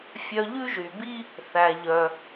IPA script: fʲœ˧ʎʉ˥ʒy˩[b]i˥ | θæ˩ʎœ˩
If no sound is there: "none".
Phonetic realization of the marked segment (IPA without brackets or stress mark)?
b